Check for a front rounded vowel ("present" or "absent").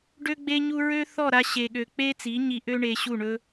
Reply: present